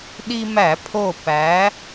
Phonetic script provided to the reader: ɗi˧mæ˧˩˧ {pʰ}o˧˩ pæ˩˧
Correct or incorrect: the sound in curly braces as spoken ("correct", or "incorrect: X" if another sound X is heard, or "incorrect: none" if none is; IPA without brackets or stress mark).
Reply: correct